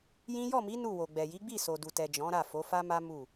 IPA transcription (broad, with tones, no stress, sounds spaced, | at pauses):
j ĩ˦ j ɔ˦˨ m i˨˦ n u˦˨ w o˨ ɡ͡b ɛ˨ j i˨˦ ɡ͡b i˦˨ s o˨ d u˨ t ɛ˨ d͡ʒ ɔ̃˨˦ ɾ a˦˨ f o˨˦ f a˦ m a˦ m u˦˨